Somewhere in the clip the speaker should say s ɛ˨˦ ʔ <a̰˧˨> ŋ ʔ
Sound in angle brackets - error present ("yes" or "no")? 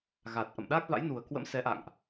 no